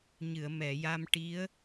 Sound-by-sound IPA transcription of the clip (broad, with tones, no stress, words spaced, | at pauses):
ɲɨ˨˩˨ə̯mɛ˨˩˨ja˧mʈi˧˥ə̯